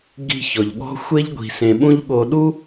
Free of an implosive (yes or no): no